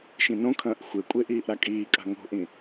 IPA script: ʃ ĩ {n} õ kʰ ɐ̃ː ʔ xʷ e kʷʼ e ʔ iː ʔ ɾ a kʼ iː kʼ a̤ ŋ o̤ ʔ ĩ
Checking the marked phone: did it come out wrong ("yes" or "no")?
no